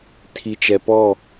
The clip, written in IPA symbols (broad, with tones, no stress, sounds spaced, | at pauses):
tʰ i˨ t͡ʃ ɛ˨ p ɔ˦˨